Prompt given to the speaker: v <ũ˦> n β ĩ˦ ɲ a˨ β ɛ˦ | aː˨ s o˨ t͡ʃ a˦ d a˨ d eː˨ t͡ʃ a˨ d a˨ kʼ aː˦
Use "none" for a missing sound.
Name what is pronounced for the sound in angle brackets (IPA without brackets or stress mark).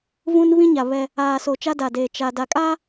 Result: ũ˦